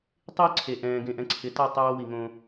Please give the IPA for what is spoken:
tˤ ɪː˦ ǀʰ e˨ ʔ ɛ̃ː˨ ɡ ẽ˨ ʔ ɛ̃˨ ǀʰ ɪ˨˦ t a˦˨ tˤ oː˦ w i˨ ŋ õ˦

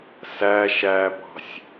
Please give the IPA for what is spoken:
s æ ʃ æ b ɑ̤ sʲ

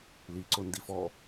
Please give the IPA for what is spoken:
l i ǀ ʊ n d i f ɔ

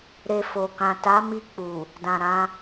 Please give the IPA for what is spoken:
ɾ e˧ f o˨ k ã˨ t a˨˦ m i˧ k͡p u˨ | d ã˨ ɾ ã˧

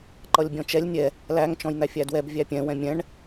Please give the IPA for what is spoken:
ǃ ʌ lʲ bʲ ɔ̃ t͡ʃ ɛ lʲ nʲ ɛ | l æ ŋ t͡ʃ ɔ̃ j n̪ æ fʲ æ d w ɛ b vʲ æ pʲ ɛ̃ w ɛ̃ mʲ ɛ̃ ɳ

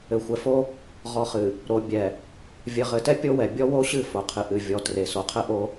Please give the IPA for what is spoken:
ɘ˨ xʷ ɛ˨ f o˦ | ʁ ɔ˨ χ ɨ˨ | ɾ o˨ bʲ ɛ˨ | vʲ ɘ˨ ʁ ɘ˨ t ɛ˦ pʲ o˦ w ɛ˨ bʲ ɔ˦ w o˦ ɕ ɨ˦˨ f o˨ qʰ ɨ˨ ʔ ɨ˨ vʲ ɔ˨ t r e˨ s o˨ qʰ ɘ˦ ʔ o˦

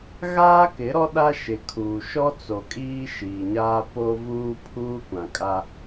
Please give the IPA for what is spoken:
ɣ aː˦ k ɪ˨˦ ɾ ɔ˦ ɗ a˦ ʃ ɪ˨ kʰ uː˨ ʃ ɔ˦ t͡s o˨ kʼ iː˦ ʃ iː˨ ɲ aː˦ p o˦ v uː˦ pʰ uː˦ kʷ ã˨ kʼ a˦

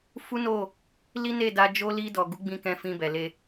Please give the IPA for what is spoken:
f u˦ n o˦˨ | l i˦ n e˦˨ d a˧ d͡ʒ o˧ l i˧ d ɔ˨ ɡ u˨˦ ɡ͡b ĩ˧ k ɛ̃˧ f ĩ˧ b ɛ˨ l e˧

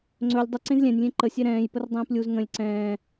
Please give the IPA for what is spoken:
ŋ͡ǀ ɵ lʲ dˤ ə ǀ ẽ z lʲ ɛ̃ nʲ lʲ ẽ ǃ ə sʲ ɛ ɾ ɛ̃ː j p ə r dˤ ɛ̃ː p lʲ u z ŋ ə̃ lʲ ǀ ɛ̃ː

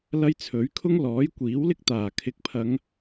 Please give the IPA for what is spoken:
l ɐ˥ j t͡sʰ ɵ˨˥ ɥ kʰ ʊ˥ ŋ l ɔː˨˥ j kʷ iː˨˥ w l ɪ˥ k̚ t̪ aː˨˩ kʰ ɪ˨ k̚ pʰ ɐ˨˧ ŋ

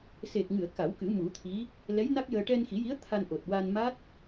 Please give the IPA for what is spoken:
s e˨˩ k̚ ŋ ɨ˨˩˨ ə̯ k a˨˩˦ w k ɨ˨˩˦ m u˨˩˦ t̪ʰ i˧˥ | l ɛ˧˥ j n a˦˥ k̚ j əː˧ ʈ ɛ˧ n x i˨˩˦ j i˧˥ ə̯ t̪ʰ a˧ n ʔ o˨˩ t̚ w a˧ n m a˦˥ t̚

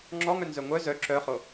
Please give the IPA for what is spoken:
ŋ͡ǁ ɔ ŋ œ n z œ ŋʷ œ z œ ǁ œ χ o

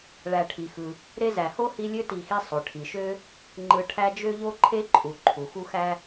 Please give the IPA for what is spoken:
ɭ æ˨ ʈʰ i˩ x ɯ˩ | ɾ e˦ z æ˩ h o˥ h i˦ lʲ ø˥ t i˨ x i˦ sˤ o˩ ʈʰ i˩ ʃ ø˥ | ŋ͡ǃ ɯ˨ ʈʰ æ˦ d͡ʒ ø˥ ʎ o˥ ǃʰ e˥ ǃʼ u˩ ǃʰ u˩ x u˥ x æ˥

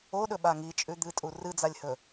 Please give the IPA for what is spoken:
o ɗ ɵ ɓ a ŋ i t͡ʃʼ ʉ d̪ ɨ tʼ u r ɨ d͡z a lʲ h ɵ

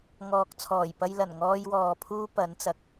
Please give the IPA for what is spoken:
ŋ ɔː˨ k̚ t͡sʰ ɔː˨˩ j p ɐ˧ j l ɐ˨˩ n ŋ ɔː˧ j w ɔː˨ pʰ uː˥ p ɐ˨˥ n t͡s ɐ˨ k̚

